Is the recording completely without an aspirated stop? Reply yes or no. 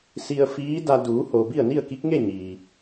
yes